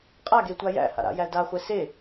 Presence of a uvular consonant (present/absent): present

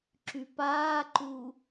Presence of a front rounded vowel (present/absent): present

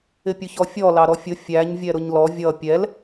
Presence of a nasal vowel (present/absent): absent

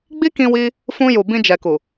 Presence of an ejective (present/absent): absent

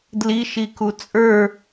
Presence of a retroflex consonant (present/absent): absent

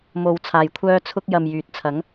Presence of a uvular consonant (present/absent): absent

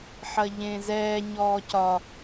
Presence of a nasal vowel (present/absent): present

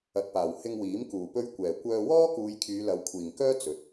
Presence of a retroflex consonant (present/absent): absent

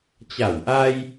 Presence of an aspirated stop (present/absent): absent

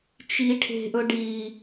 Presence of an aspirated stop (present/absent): present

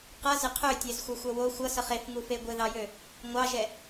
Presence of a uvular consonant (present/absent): present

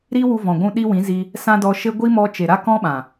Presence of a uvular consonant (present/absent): absent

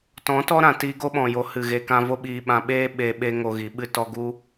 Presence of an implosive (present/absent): present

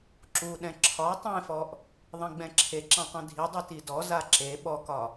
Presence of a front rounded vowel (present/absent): absent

